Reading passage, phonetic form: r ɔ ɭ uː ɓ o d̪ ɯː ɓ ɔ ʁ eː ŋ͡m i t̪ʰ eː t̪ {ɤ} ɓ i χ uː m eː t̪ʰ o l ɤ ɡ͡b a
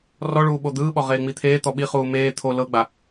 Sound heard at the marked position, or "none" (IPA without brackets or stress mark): ɔ